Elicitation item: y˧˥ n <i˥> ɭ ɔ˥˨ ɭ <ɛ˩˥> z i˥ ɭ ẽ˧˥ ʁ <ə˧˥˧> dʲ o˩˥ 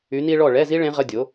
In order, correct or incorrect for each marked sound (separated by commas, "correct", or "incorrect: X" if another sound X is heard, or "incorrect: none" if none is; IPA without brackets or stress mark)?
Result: correct, incorrect: ɛ˧˥˧, correct